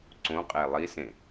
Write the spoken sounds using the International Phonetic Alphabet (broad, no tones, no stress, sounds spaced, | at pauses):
ǀ õ qʼ e lˠ i s ẽ